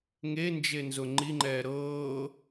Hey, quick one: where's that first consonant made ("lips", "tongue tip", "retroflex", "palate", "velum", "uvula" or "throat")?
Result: velum